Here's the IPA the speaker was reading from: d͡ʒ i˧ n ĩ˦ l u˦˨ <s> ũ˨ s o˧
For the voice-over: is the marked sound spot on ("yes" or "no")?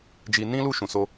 no